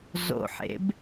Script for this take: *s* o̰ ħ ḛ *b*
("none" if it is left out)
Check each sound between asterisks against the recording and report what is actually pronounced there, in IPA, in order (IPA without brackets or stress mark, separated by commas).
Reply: z, b